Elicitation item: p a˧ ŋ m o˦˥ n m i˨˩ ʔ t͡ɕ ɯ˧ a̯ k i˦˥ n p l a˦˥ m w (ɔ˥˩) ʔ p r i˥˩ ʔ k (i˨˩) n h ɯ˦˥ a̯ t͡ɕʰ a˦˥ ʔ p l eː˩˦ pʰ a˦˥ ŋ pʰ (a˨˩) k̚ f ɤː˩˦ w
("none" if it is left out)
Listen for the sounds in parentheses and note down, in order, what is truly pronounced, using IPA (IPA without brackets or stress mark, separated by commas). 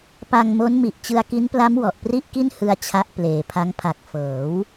ɔ˨˩, i˥˩, a˨˩